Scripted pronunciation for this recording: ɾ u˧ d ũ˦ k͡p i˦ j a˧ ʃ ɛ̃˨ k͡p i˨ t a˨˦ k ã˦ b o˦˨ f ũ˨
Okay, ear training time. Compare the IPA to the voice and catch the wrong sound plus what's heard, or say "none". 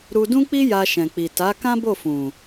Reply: none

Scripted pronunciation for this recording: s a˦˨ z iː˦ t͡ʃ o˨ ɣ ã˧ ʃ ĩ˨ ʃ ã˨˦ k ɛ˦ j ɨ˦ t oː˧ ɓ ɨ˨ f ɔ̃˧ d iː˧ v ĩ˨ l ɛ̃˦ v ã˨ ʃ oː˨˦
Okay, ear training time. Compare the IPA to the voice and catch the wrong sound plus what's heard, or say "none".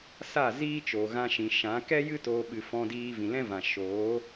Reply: none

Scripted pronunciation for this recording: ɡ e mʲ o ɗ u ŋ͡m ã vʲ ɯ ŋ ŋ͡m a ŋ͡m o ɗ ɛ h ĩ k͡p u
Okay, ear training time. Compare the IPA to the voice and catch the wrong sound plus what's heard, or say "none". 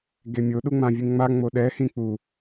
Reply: none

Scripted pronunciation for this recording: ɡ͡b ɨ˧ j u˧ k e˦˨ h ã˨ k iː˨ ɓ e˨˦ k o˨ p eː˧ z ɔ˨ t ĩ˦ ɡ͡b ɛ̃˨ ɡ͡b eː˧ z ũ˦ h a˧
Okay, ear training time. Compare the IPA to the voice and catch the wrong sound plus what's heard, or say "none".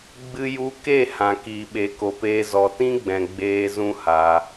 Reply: none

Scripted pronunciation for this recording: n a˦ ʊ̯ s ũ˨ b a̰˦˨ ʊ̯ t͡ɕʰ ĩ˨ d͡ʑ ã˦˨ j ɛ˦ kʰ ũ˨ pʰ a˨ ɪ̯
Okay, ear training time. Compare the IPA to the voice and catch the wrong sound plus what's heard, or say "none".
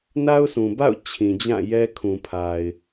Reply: none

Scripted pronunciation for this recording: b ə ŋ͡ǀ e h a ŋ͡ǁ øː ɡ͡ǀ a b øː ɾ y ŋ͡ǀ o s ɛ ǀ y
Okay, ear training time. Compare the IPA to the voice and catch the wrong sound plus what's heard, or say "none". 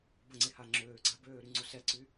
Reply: none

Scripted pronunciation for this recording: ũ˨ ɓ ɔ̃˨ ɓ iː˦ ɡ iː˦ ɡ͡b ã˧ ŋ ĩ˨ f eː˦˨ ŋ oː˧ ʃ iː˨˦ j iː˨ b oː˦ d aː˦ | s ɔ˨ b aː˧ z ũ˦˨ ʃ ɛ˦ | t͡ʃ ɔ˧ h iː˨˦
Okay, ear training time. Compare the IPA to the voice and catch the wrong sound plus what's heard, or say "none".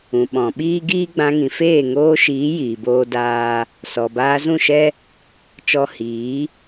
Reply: none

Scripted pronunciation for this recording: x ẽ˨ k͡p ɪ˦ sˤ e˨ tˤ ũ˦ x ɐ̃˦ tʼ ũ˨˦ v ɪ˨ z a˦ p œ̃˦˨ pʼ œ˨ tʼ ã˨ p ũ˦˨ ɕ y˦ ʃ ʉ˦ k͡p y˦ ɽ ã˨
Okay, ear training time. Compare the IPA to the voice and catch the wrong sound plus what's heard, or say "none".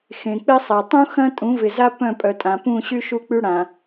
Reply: ʉ˦ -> u˦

